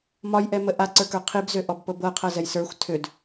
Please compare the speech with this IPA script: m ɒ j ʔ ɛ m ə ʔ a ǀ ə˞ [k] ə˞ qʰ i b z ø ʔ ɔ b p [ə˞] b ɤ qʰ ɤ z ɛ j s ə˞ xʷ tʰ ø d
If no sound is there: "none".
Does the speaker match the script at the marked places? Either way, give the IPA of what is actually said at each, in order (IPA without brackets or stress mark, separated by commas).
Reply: k, ɤ